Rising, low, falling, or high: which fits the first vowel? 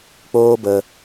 high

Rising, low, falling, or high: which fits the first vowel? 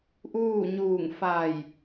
falling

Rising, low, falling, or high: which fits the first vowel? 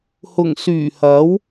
low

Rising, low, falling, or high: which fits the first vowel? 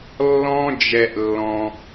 high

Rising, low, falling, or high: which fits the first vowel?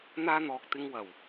high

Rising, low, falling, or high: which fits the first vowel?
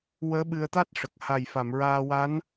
rising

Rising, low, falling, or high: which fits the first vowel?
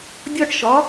high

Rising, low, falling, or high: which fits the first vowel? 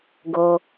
low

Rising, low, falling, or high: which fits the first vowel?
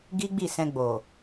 high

